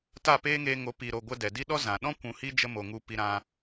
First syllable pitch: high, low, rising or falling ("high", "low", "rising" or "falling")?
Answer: falling